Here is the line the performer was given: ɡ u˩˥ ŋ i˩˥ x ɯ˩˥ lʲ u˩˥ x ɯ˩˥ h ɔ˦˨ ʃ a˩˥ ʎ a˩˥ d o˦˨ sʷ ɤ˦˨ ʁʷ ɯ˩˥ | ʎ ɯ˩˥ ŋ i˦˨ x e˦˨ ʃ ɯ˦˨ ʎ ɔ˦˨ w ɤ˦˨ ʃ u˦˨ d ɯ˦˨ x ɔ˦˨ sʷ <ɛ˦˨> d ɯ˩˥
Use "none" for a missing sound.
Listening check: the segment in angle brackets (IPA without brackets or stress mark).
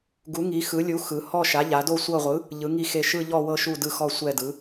ɛ˦˨